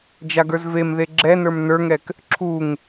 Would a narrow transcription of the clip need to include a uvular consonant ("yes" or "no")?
no